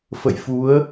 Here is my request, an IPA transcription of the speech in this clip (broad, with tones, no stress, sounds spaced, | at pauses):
f ə̰˧˨ j f u˨˦ ə̯